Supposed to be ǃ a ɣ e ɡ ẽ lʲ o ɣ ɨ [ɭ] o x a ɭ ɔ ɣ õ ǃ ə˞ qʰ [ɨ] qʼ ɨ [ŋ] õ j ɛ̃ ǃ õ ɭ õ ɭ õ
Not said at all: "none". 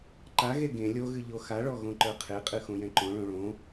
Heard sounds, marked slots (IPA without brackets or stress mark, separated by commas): ʎ, e, x